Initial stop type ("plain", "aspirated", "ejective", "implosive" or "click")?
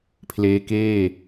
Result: aspirated